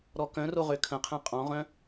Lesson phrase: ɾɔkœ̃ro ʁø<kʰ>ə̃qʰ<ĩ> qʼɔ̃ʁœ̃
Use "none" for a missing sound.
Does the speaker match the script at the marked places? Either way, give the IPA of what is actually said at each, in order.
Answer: kʰ, ẽ

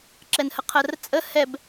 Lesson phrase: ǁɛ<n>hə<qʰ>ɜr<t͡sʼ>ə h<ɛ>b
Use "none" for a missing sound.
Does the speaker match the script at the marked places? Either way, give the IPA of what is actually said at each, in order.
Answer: n, qʰ, t͡sʼ, ɛ

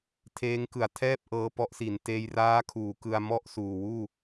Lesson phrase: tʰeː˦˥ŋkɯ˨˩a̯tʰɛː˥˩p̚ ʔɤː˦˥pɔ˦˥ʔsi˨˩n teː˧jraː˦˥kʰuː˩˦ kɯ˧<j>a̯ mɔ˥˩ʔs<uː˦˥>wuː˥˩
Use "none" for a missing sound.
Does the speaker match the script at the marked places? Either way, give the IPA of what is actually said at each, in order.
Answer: none, uː˨˩

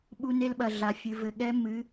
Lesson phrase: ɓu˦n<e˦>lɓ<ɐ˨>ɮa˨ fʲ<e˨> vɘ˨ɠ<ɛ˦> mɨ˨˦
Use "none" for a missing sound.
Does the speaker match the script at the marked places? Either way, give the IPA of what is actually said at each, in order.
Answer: e˦, ɐ˨, ɨ˨, ɛ˦

